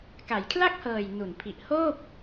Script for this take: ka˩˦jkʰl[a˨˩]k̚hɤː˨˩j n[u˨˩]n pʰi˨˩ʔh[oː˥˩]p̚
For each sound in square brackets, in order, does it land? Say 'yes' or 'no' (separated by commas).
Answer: no, yes, yes